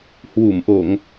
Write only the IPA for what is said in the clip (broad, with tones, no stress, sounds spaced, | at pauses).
h w u˧˩ m ʔ o˧˩˨ ŋ